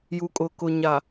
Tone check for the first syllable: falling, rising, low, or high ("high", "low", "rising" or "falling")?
low